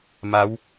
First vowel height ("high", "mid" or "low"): low